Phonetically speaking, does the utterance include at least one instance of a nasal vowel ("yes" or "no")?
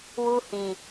yes